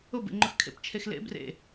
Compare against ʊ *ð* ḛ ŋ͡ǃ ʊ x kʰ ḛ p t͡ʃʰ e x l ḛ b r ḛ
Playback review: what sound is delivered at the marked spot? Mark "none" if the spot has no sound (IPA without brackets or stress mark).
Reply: b